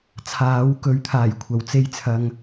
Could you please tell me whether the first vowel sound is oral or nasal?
oral